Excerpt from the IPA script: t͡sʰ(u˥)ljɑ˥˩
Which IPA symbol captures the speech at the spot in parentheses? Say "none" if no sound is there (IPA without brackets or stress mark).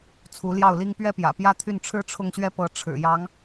u˧˥